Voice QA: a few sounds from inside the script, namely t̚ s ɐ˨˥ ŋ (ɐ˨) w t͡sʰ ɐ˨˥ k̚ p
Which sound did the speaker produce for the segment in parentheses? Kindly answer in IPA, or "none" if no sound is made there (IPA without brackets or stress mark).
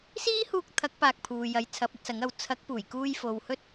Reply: ɐ˨